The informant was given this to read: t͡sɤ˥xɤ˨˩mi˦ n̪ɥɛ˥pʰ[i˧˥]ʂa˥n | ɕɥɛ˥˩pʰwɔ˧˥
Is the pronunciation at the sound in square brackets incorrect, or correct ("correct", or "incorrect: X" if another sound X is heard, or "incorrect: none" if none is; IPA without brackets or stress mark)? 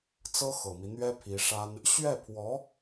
correct